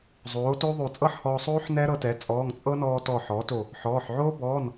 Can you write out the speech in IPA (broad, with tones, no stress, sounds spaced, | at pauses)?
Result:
zˤ oː˩˥ t o˦˥ ðˤ o˧˩ t͡sʼ ɤ˥˨ ħ h ɔː˧ sˤ oː˦˥ ħ n ɛ˦˥ ɾ ɤ˧ t ɛ˩˥ t͡sʼ ɔː˩˧˩ ŋ t͡sʼ ɤ˦˥ n ɔː˧ t ɔ˧˩ ħ ɔː˩˥ t o˧˩ | ħ ɔː˩˧˩ ħ ʕ oː˦˥ b ɔː˩˧˩ n